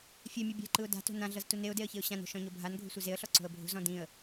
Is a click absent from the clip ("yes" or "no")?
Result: no